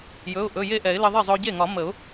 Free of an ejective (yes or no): yes